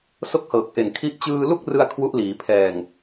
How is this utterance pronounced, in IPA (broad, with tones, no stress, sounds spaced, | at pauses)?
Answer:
s o˥˩ k̚ h ɤː˨˩ k̚ ʔ e˨˩ n kʰ i˦˥ ʔ t͡ɕ ɯː˧ l u˥˩ k̚ r ɯ˧ a̯ kʰ w u˦˥ ʔ l iː˩˦ pʰ ɛː˨˩ ŋ